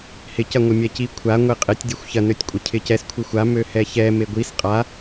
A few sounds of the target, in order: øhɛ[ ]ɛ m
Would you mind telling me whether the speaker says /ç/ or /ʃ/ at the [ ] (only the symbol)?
ç